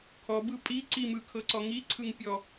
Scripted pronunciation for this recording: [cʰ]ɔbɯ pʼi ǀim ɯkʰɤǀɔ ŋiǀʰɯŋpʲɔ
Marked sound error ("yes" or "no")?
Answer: yes